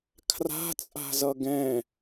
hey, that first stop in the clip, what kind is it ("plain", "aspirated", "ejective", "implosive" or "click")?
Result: aspirated